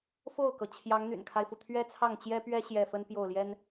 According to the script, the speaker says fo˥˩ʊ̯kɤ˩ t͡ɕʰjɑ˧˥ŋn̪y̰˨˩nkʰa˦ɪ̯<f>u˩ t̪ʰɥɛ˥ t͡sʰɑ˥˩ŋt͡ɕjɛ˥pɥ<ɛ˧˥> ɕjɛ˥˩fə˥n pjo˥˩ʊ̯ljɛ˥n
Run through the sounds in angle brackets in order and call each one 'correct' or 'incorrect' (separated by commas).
correct, incorrect